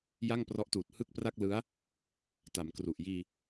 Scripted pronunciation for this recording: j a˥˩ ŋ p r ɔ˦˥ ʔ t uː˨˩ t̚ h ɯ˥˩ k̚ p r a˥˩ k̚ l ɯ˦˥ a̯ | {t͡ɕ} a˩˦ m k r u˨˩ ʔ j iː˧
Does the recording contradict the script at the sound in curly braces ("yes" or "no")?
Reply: yes